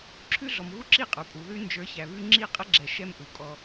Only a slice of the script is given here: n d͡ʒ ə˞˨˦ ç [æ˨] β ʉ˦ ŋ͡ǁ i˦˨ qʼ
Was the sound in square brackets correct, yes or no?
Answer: yes